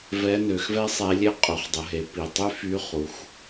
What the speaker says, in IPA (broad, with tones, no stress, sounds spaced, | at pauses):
v ɛ˧˥ n ø˩˧ x v ɛ˥ sˤ e˧˥ lʲ e˥ qʼ ø˩˧ χ dˤ ə˩˧ ɦ e˩˧ p i˩ tˤ y˥ f y˧˥ χ u˩˧ x